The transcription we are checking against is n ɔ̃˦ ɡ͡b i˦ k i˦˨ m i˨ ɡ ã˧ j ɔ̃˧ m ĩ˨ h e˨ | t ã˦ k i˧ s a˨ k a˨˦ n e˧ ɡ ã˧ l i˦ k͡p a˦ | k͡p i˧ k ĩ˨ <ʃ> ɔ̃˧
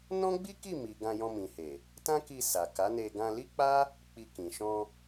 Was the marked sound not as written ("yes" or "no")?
no